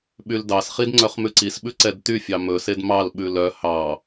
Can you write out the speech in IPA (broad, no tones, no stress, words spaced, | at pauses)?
ɓyldɑsχid ŋ͡ǀœχmʉǀisɓʉ ǀɛdtyfʲɑ mɵsed mɑlɓʉ lœ hɑ